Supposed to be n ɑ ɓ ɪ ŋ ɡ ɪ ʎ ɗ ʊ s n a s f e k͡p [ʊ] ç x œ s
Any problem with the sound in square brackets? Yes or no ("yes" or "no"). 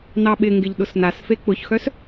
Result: no